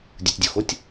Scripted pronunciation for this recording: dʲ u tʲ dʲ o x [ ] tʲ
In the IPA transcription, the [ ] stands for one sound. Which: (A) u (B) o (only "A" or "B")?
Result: B